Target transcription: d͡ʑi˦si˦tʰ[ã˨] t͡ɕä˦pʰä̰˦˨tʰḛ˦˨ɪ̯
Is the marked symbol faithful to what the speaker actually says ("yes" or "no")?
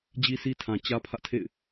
yes